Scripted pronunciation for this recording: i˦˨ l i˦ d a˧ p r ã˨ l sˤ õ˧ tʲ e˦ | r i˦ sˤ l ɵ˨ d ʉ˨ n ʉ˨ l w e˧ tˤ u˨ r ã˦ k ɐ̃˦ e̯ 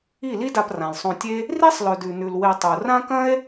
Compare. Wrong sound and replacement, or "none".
none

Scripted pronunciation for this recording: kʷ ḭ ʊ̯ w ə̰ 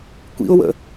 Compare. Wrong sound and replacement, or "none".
none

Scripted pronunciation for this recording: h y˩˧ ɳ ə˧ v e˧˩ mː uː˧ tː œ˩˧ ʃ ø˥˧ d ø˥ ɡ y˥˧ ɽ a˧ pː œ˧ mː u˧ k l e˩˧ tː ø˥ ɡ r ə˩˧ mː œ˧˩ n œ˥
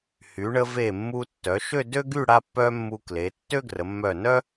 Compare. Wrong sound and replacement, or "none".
uː˧ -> u˧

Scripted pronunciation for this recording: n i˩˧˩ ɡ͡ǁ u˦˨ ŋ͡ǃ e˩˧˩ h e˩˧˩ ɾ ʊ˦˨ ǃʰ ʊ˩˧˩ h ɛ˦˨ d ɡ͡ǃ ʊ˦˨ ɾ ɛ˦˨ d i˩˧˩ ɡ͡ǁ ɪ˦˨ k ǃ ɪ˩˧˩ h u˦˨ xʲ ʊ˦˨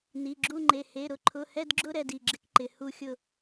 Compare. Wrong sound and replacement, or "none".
ɡ͡ǃ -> ɡ͡ǁ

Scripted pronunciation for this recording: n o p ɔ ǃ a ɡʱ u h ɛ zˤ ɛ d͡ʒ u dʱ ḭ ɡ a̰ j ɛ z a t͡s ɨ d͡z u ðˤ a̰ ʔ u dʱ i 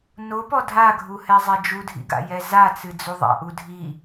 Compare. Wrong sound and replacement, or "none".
ǃ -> dʱ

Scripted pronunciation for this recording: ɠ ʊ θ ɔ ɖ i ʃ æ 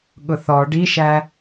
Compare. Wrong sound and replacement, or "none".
none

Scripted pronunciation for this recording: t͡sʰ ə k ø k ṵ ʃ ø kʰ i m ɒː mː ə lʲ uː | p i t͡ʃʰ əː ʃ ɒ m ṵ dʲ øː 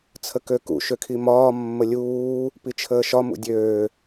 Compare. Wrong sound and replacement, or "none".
none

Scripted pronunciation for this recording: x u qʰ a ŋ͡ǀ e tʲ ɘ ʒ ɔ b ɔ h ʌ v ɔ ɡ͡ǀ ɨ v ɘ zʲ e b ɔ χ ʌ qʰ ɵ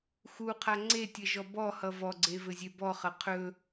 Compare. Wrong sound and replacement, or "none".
ɨ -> e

